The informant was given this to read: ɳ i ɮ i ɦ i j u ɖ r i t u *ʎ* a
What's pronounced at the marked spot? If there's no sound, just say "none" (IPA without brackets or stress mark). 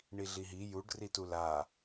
l